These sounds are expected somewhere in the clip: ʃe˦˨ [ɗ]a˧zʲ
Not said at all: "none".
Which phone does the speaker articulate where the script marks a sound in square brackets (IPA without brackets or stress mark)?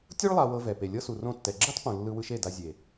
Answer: d